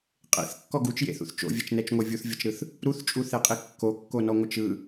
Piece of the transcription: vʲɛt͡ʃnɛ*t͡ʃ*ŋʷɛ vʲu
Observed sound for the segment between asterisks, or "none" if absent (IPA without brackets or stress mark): t͡ʃ